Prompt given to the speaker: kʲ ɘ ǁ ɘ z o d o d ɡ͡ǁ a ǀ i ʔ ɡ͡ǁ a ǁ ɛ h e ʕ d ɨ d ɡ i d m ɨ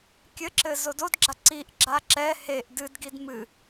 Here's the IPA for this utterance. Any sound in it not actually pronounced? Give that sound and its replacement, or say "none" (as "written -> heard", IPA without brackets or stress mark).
ʕ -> ʔ